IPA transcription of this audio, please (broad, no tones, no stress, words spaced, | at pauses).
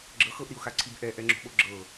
ɡ͡ǁɤx ɤʔɾiʊ̯xaǀʰib ʔɛʔɛŋ͡ǁo̤ɓo ɡ͡ǁɤ